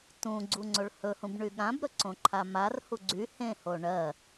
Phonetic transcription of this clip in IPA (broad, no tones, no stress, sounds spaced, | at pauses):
t ũ ɡ͡ǀ u ŋ͡ǀ o ɭ h ɵ h ũ b ɳ y ɠ ã b ɾ ɵ ǀ õ ǃʰ a m a r h u ɡ͡ǀ y h ẽ h o ɳ ɜ